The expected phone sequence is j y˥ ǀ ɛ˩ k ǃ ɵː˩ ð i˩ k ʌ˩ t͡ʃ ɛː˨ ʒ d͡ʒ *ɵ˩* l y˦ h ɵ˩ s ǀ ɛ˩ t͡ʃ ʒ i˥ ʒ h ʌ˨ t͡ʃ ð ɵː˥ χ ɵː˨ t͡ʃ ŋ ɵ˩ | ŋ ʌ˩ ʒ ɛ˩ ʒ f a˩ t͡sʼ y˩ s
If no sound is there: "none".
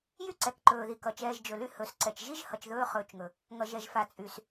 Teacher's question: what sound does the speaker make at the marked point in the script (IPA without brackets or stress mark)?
ɵ˩